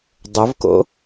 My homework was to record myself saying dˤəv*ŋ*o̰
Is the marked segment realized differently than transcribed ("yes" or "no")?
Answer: yes